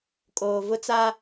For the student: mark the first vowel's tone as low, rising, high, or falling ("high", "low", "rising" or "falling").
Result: low